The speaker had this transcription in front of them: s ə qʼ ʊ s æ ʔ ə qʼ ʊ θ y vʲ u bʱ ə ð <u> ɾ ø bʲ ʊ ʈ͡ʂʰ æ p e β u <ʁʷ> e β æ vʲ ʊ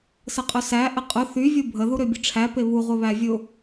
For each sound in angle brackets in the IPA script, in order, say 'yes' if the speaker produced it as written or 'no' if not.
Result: yes, yes

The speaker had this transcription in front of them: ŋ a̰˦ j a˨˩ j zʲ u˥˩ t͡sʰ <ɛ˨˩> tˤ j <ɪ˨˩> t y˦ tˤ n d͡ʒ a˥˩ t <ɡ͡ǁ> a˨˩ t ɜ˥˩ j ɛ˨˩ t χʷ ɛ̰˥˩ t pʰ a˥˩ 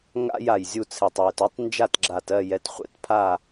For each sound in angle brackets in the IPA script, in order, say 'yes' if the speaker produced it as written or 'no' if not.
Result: yes, yes, yes

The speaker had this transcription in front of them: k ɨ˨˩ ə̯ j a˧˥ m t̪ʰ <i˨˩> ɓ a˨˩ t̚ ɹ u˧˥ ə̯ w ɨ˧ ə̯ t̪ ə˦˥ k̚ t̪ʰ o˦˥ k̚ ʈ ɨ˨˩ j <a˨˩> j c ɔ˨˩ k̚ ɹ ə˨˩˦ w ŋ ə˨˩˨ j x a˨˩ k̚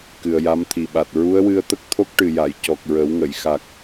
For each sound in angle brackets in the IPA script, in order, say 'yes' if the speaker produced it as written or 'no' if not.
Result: yes, no

